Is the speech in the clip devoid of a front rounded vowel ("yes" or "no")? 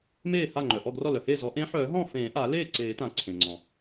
no